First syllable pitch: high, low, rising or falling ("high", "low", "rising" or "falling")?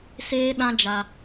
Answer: high